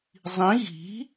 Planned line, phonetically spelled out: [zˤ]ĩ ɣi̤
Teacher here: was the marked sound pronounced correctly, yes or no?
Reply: yes